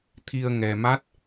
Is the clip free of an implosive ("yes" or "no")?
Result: yes